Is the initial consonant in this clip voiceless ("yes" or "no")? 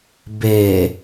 no